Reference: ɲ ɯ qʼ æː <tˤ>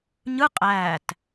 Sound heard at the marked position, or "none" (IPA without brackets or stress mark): t